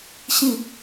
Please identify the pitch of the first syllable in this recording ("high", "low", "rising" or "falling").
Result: falling